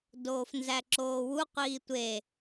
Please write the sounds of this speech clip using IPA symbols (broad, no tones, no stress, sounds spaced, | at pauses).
d oː f n z æ ǁ oː w u qʷ iː tʷ e